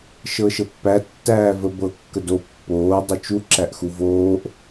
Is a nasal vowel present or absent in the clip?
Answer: absent